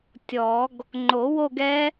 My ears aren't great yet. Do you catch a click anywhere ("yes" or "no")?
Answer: yes